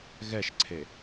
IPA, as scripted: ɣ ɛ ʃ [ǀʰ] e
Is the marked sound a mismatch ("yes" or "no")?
no